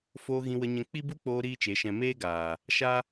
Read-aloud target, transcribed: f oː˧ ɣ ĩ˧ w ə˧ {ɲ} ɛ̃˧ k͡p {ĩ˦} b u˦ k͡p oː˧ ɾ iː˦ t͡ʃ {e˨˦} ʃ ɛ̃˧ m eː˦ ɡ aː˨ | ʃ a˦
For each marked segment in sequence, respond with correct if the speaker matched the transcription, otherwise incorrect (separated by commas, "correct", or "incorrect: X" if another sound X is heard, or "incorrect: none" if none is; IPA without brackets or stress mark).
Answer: correct, incorrect: i˦, correct